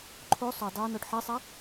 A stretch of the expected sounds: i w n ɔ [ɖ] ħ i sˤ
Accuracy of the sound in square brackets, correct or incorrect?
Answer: correct